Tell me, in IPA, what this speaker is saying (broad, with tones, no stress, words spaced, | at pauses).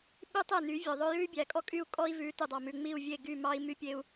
ɓy˦ tˤɛ˦˨ny˨˦vʲœ˨ ðˤɵ˦ jʉ˦y̯bʲæ˨kʼɔ˦kʼy˦˨u̯ kʼɔ˦i̯vʉ˨˦ ty˨dˤɑ˨mʉ˨ ŋ͡mi˦˨u̯vʲe˦˨ɡy˦˨mɑ˦i̯ my˦pʲe˦u̯